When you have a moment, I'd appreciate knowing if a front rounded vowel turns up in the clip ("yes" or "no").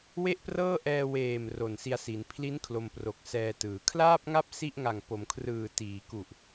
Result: no